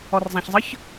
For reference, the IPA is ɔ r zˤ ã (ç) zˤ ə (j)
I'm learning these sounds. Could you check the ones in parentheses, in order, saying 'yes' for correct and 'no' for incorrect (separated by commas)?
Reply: yes, no